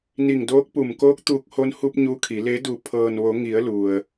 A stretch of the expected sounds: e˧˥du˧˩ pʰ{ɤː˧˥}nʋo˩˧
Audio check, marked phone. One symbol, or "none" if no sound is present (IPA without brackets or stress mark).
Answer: ɤː˩